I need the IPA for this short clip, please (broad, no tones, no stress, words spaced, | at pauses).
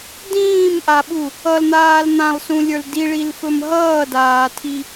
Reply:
dĩːmʔaɓu | ʌln̪aːl n̪ãlˠsũlʲə˞l diɭilfɵm ɦʌːdaːtʰi